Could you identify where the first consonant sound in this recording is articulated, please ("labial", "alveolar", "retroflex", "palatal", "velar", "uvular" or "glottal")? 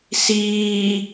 alveolar